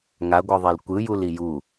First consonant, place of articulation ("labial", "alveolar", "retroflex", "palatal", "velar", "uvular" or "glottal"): velar